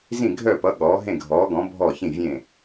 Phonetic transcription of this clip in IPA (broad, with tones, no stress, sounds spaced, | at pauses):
z ĩ˧˩ ɡʱ œ˧˩ p ʌ˩˧ ɠ ɔː˩˧ ɦ ẽ˧˩ ɡʱ ɔː˩˧ ɡ ɔ̃˩˧ bʱ ɔ˧˩ ç ĩ˧˩ vʲ ẽ˧˩